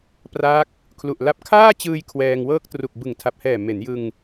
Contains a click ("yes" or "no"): no